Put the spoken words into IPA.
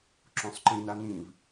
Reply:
ǁ õ sˤ ǃ ĩ n a n ĩ v

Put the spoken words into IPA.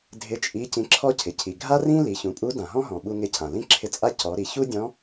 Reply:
dʱ ɪ˧˥ t͡ʃʼ i˧˥ c ĩ˧ ǁʰ ɔ˥ cʰ ɪ˩ cʰ i˩ ɡʱ a˥ r ĩ˥ l i˩˧ ç ũ˩˧ pʼ u˧˥ d ã˩ ɦ ɔ̃˥ ɦ ɔ̃˩ ɓ u˧ ŋ ɪ˧ cʰ ã˩ l ĩ˥ ǁʰ ɪ˧˥ t͡sʼ a˥ c ɔ˩˧ ɾ i˩˧ ç u˥ dʲ ɔ̃˧˥

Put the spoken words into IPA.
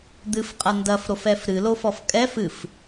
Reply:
d̪ ɨ f qʼ ɐ n d ɐ f ɾ o f ɛ f ɾ ɨ l o f ɔ f kʼ ɛ f ɨ f

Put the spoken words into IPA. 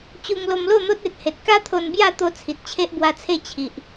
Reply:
t͡ɕ u˧ ŋ l o˧ m l o˥˧ n̪ o˦ t̚ e˨ t̚ h e˨ t̚ k a˦ t̪ʰ o˧ n b j a˥˧ t̪ o˧ t͡sʰ i˨ t̚ t͡ɕʰ e˦ ʔ b w a˧ t͡sʰ e˥˧ t͡ɕʰ i˨ ʔ

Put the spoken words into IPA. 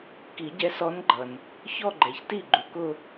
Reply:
k i˨˩˦ ɟ ɛ˧˥ s ɔ˧˥ n ɡ͡ǃ ʌ˩ n | ç ɔ˥˧ ɡ͡ǃ ɛ˩ ç t i˥˩ ɡ͡ǃ u˩ k ʊ˥˧

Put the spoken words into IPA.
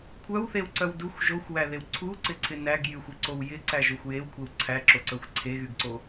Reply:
kʷʰ œ w θ e w ǀ œ w d u xʷ ʒ o xʷ w æ ð e w ǀʰ u ǀ ɪ ǀʰ ɪ n æ ɡ j y xʷ y ǀ o w j ɪ ǀ æ ʒ o xʷ j e w kʷʰ e w ǀʰ æ ǁ o ǀ œ xʷ ǀʰ e ɣ y ɡ ǀ o

